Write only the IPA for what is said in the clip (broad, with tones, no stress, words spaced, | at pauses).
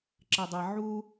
ǁɘ˨dˤɛ˨ ʕu˦